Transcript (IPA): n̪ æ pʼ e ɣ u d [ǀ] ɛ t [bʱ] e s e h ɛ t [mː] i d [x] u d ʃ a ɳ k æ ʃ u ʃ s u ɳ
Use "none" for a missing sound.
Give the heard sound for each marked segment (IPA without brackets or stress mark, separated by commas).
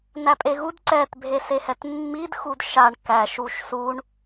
ǀ, bʱ, mː, x